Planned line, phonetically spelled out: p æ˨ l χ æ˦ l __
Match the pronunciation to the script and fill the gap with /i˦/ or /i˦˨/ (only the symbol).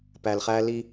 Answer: i˦